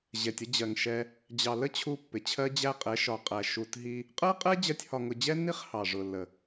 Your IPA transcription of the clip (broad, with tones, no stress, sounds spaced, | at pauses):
ʑ ɛ˨ tʲ ə˦ d͡ʑ ɜ˨ ŋ ʃ ɛ˧ | d͡ʑ ɑ˨ l ə˦ t͡ɕʰ u˧ pː ɪ˨ t͡ɕʰ ɜ˦ d͡ʑ æ˦ qʼ ɛ˨˦ ʃ ɒ˨ qʼ æ˨ ʃ u˧ t ɦ i˦ | qʼ ɜ˦ qʼ ɛ˦ d͡ʑ ɜ˦ tʲ h ɒ˧ ŋ ʊ˧ d͡ʑ ɛ˦ nː i˦ χ h ɑ˨ ʐ ʊ˨ lː ə˨